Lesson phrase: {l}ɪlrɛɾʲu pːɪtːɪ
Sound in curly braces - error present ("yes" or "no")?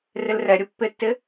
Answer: yes